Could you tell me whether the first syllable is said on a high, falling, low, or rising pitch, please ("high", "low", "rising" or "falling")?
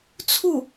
falling